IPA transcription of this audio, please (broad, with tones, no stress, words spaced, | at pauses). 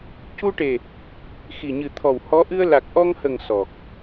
cu˧ʈe˨˩ | xi˨˩ɲɨ˨˩t̪ʰɔ˨˩w hɔ˧˥ ʔɨ˧ə̯la˨˩k̚ʔɔ˧ŋhə˨˩ŋ sɔ˨˩k̚